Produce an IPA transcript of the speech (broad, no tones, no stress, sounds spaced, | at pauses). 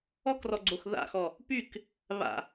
ɔ k r ɔ ɡ͡ǀ o x ð a̰ x ɔ | p y k | β a̰